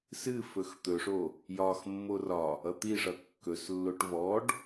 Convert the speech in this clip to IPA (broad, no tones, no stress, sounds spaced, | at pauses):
s ɨ f ɵ x t̪ ɵ ʂ o | j ɒ x mː o r ɒ | ʌ t̪ i ʂ ʌ kː ɵ s lː o ʈ v ɔ ɖ